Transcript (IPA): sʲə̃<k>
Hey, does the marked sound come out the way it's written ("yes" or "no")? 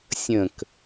yes